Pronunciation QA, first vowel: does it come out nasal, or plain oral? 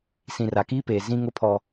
nasal